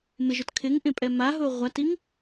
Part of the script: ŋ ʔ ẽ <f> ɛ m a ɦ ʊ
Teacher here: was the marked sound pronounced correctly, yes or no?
no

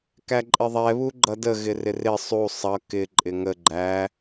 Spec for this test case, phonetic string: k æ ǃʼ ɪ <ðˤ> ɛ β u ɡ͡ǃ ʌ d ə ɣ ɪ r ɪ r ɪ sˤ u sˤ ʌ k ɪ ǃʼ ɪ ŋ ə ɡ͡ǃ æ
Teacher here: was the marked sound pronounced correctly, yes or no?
yes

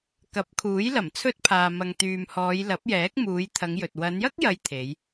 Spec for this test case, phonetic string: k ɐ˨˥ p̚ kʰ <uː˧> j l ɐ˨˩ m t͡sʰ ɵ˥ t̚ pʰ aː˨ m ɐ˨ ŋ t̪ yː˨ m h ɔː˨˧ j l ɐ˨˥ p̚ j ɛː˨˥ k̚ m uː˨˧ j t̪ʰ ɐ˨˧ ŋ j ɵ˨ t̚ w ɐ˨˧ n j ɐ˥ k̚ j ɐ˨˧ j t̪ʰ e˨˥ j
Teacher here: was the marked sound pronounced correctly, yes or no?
no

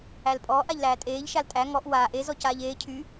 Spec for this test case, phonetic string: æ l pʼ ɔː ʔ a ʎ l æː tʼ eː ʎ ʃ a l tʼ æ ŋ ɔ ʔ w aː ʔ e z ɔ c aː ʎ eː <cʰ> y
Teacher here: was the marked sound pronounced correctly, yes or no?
yes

